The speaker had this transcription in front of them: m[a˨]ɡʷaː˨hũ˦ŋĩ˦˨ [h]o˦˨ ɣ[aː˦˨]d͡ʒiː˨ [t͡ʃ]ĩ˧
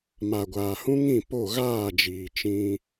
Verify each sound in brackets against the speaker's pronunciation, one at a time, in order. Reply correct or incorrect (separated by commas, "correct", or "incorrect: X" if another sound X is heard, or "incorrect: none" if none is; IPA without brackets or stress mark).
correct, incorrect: p, correct, correct